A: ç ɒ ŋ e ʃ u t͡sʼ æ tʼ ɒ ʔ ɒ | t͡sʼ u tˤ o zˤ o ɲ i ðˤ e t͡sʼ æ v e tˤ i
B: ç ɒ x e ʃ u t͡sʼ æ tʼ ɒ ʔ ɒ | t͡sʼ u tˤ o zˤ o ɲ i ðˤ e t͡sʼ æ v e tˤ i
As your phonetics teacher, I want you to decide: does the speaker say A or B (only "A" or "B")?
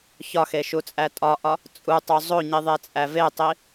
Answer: B